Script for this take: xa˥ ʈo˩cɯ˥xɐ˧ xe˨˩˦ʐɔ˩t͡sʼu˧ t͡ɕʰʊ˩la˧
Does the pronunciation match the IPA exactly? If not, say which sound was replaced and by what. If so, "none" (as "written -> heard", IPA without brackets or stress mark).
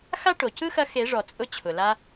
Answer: u˧ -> ʊ˧